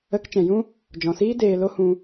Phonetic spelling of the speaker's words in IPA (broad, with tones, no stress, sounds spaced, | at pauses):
ə˨˦ k t͡ʃ ɛ̃˨ j ũ˦ | d͡ʒ ɔ̃˨ s iː˦ d eː˧ l o˦ h ũ˧